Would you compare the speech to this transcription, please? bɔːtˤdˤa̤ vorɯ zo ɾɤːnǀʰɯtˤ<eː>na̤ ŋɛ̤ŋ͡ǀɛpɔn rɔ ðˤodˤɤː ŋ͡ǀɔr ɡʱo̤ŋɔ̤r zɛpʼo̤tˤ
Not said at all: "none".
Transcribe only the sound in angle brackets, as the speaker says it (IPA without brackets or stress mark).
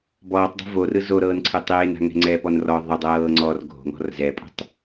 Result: eː